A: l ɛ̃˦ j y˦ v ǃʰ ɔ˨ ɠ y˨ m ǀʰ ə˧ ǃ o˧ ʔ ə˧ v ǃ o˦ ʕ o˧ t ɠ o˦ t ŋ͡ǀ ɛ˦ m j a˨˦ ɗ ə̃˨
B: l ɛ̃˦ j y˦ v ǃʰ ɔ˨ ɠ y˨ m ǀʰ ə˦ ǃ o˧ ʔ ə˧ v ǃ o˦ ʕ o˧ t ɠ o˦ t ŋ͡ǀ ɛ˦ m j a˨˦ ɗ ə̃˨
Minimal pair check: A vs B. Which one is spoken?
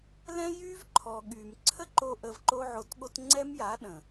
B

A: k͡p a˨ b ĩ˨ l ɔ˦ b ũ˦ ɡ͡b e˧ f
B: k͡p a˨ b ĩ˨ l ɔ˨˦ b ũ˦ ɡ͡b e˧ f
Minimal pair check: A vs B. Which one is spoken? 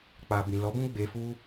B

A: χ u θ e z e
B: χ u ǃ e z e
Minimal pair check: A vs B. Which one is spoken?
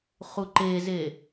B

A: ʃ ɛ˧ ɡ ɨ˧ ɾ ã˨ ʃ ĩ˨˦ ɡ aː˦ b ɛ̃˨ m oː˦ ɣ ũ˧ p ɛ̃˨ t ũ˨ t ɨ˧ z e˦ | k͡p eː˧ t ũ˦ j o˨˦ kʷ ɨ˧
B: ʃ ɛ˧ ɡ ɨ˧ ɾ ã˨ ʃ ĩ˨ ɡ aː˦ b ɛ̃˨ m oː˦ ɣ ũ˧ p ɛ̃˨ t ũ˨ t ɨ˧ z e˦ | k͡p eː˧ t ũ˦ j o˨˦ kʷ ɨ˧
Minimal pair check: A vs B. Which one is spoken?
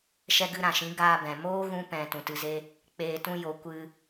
A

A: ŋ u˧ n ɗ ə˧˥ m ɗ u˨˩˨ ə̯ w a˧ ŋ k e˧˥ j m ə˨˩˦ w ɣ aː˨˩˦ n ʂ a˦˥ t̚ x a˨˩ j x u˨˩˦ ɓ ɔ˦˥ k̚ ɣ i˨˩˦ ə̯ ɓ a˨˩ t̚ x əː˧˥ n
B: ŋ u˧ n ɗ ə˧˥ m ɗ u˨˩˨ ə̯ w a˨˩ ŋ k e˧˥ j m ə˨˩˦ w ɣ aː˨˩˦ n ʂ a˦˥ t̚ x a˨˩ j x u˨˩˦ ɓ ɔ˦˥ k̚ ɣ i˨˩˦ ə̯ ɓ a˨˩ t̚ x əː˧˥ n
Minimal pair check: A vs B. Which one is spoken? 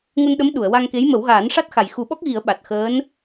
A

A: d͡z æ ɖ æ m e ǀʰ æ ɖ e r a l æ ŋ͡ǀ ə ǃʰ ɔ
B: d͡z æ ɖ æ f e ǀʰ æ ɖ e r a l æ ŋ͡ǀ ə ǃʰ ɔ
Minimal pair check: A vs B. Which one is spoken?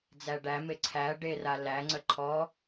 A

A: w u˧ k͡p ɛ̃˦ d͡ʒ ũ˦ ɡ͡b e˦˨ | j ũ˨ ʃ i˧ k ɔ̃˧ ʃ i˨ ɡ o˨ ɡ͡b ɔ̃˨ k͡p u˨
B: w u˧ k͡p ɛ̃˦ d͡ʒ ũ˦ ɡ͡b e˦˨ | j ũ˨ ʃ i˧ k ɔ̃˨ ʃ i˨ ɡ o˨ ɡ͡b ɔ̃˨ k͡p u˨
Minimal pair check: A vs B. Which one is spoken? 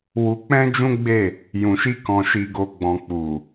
B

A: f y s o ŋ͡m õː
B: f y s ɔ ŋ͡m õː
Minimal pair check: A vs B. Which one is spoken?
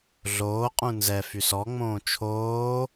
B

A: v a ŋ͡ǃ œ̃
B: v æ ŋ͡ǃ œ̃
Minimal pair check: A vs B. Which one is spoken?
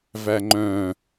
B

